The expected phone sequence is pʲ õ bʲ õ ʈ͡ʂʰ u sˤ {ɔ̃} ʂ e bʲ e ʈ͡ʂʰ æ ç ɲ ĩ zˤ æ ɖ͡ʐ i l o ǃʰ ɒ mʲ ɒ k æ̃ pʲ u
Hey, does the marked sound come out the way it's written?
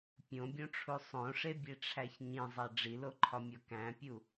no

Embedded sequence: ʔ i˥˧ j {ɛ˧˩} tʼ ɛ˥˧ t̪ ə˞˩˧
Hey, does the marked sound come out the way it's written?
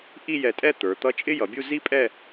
yes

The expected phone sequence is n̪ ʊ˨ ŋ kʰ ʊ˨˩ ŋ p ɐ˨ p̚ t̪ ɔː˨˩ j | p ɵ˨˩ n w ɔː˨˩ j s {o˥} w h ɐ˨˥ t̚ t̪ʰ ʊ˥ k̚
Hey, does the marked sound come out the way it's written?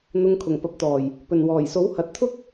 no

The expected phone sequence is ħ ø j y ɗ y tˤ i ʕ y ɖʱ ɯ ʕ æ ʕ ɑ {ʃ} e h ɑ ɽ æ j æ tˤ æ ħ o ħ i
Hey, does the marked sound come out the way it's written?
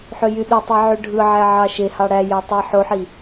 yes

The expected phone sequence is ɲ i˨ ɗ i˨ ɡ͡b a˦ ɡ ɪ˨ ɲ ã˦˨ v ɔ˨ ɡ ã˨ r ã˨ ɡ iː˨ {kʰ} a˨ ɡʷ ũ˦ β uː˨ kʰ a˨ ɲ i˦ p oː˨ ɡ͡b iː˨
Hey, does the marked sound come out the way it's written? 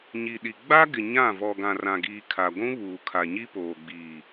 yes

